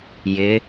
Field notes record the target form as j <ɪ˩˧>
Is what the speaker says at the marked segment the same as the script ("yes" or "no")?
yes